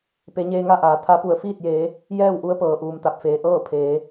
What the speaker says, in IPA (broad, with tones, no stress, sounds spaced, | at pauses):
p e˩˧ ɲ eː˧ ŋ a˥˨ ʔ aː˩˧ t̪ʰ a˧˥ p u˧˩ ə̯ f iː˥˨ t̚ j eː˩˧ | j ɛː˥˨ w ʔ u˧˥ ə̯ p ɤː˩ ʔ uː˩ m t̪ a˧˩ p̚ f eː˩ ʔ ɤː˥˨ pʰ eː˩˧